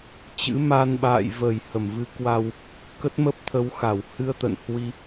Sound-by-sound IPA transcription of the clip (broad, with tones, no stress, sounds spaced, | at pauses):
t͡ɕ ɨ̰˧˥ m a˧ n ɓ a̰ː˧˨ j v ə˧˩ j h ə˧˩ m v ɨ˨˦ k w a˧ w | k ə˦˥ t̚ m ə˦˥ p̚ t̪ʰ ə˨˦ w x a˧˩ w h ɨ˧ ə̯ t̪ ə̰˧˨ n h w i˧